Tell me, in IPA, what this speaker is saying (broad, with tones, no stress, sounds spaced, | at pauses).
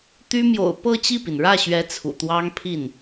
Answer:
t̪ y˥ m j o̰˨˩ ʊ̯ p ɤ˥˧ t͡ɕ i˥˩ p i˩ n ɻ ä˥˩ ɕ ɥ ɛ˧˥ t͡sʰ ṵ˨˩ t̪ w ɑ˥ ŋ pʰ i˥˩ n